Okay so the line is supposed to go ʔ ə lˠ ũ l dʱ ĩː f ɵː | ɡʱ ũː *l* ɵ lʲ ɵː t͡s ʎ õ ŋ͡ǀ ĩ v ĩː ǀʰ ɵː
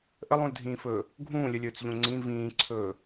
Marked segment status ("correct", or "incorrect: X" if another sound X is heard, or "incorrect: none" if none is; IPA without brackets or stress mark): incorrect: lʲ